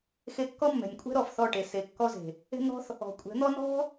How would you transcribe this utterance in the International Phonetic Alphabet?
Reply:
x e˧ kː ɔ˦ mː ɛ̤˨ nʲ kʷʼ ɛ̤˦ ɾ ɔ˨ f θ ɔ˦˨ ʈ e˨ s e˨˦ kː ɔ˦ z e̤˨ | e̤˧ n̪ ɔ̤˦ θ | ɔ̤˨ kʷʼ ɛ̤˨˦ n̪ ɔ˦ n ɔ̤˦

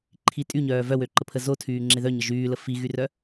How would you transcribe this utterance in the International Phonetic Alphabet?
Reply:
ǃʰ i tʼ y ɲ œː v œ w ø ǃ ə pʰ ə z o tʰ yː ŋ͡ǁ e ð œ ɲ ə ʒ yː l ə f i ɣ y r œ

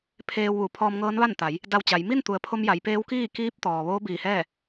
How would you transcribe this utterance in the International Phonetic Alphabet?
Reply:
pʰ eː˧ w ʋ u˩˧ pʰ ɔː˧ m ŋ ɤː˧˥ n ʋ a˥˨ n t̪ a˩˧ j | d a˧ w t͡ɕ a˩˧ j m i˥˨ n t̪ u˩˧ ə̯ pʰ o˧ m j a˩˧ j p eː˧˥ w k iː˥˨ k iː˧˥ p̚ t̪ ɔː˩ ʋ oː˧˥ b iː˧˩ h ɛː˥˨

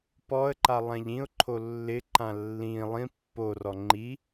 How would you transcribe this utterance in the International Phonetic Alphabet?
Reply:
p ɔ ə̯ ǃ a lˠ ã ʎ ĩ ʊ̯ ǃʰ o lː ɪ ǃ ã lː ĩ lˠ ĩ pː o r ɔ ŋ͡ǃ i

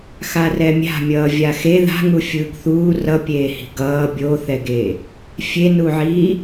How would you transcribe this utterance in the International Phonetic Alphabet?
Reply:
x a r ɛ mʲ a̤ mʲ ʌː vʲ a x e ð a̤ ŋ u fʲ ɯː ɡ θ uː r ʌ pʲ eː h i̤ ɡ ʌː bʲ o θ ɛ ɡ e | fʲ e n u ʕ iː

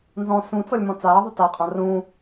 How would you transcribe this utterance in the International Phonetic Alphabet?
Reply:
n z ɔ̃ s ũ t͡s ɔ lʲ m ɔ̃ t͡s aː ðˤ ɵ t a qʼ ã r ũ

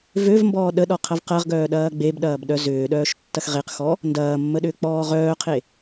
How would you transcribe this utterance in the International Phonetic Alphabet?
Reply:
v ø v m b ɔː ɗ ə ɗ ɔ qʰ ɐ v q ɐ ʁ ɡ œː ɗ ɐː ɡ͡b e b ɗ ɐː b ɗ œ z ʏː ɗ œː ʃ tː ɐ x ʁ e q x ɔ | n d ɐː mː ə ɗ ʏː k͡p ɔː ʁ œː qʰ e

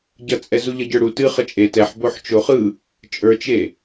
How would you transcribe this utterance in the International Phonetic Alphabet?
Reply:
ɟ ʌ t͡sʼ ɛ z u ʎ ʌ ɟ ə˞ ɽ u t ɨ χ ə t͡ʃʼ e t ɛ ħ b o ħ t͡ʃ o χ ɯ | t͡ʃʼ ə˞ t͡ʃ e

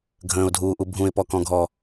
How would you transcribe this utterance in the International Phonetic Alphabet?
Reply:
ɡʱ ə̃ː ʊ̯ dʱ uː ʔ u bʱ ũ ɪ̯ p ɔ k ɔ̃ ɡʱ ɔ

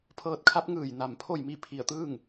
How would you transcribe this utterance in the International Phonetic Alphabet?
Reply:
pʰ ɤː˧ t̚ kʰ a˧˥ p̚ ŋ ɯː˧˩ j n a˧˩ m pʰ o˥˨ j m i˥˨ pʰ i˧˩ ə̯ t̪ ɯː˥˨ ŋ

